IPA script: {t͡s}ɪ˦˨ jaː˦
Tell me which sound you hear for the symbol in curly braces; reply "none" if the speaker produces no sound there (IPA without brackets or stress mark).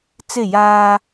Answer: t͡s